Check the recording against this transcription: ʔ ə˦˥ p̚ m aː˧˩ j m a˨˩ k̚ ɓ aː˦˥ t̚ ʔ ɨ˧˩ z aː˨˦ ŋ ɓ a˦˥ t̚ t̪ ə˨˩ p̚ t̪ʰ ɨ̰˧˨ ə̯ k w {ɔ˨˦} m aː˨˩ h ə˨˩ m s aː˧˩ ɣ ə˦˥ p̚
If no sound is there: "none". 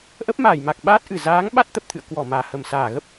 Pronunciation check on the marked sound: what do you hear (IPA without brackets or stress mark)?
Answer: ɔ˧˩